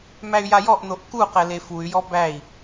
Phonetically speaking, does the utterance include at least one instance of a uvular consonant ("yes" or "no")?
yes